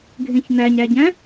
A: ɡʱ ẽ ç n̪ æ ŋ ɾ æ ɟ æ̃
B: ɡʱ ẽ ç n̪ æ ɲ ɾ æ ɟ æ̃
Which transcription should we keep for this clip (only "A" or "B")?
B